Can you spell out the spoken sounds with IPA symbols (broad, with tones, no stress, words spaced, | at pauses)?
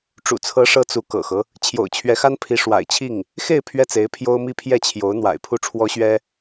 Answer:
ʈ͡ʂṵ˨˩t͡sʰɤ˧˥ʂɤ˧˥ t͡su˧˥kɤ̰˨˩xɤ˦ | t͡ɕʰjo̰˨˩ʊ̯t͡ɕʰɥɛ˧˥xa˥npʰi˧˥ ʂwa̰˨˩ɪ̯t͡ɕʰi˥˩ŋ | xe˥˧ɪ̯ pʰɥɛ˥˩t͡se˧˥ɪ̯ pʰjo˥ʊ̯mi˥ pʰjɛ˥˩t͡ɕʰjo˧˥ʊ̯n̪wa̰˨˩ɪ̯ pʰu˥˩ʈ͡ʂʰwɔ˥ɕɥɛ˥